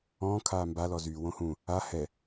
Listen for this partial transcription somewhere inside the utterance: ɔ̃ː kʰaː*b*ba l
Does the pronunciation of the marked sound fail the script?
yes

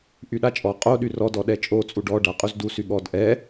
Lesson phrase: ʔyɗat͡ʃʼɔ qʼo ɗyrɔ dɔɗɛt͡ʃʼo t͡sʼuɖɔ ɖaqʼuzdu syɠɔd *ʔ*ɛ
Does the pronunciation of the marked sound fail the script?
no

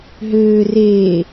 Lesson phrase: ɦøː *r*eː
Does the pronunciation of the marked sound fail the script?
no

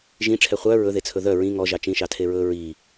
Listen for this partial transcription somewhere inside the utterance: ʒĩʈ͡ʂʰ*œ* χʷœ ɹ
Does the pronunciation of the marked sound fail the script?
yes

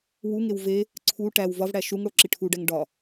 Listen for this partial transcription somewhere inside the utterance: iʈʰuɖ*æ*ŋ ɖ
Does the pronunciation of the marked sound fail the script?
no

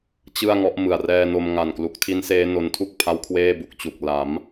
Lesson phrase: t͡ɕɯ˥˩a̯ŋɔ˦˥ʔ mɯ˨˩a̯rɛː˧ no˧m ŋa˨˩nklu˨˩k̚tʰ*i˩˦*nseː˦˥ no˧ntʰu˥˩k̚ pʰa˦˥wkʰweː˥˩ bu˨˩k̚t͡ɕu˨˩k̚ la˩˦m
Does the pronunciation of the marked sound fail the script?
yes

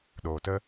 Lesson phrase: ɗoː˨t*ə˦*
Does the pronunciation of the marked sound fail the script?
no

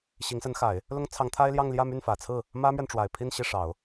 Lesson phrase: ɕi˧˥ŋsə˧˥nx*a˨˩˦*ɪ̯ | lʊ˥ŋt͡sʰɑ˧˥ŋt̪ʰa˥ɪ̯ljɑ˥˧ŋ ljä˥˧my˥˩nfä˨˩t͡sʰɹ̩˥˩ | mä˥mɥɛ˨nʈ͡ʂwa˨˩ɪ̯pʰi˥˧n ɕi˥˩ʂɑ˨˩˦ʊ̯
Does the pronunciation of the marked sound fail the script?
no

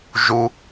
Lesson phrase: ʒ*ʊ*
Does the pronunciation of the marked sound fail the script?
yes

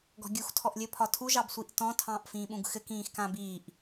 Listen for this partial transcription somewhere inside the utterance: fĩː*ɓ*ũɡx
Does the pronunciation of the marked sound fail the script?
no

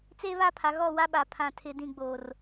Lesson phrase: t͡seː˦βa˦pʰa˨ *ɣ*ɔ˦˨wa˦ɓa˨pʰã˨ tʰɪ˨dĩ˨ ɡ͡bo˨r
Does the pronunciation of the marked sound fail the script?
no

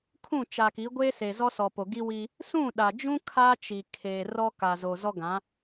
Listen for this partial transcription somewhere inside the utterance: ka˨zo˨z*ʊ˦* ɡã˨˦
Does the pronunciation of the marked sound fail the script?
yes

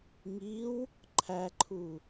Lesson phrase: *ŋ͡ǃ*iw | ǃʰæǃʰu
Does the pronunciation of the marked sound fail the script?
yes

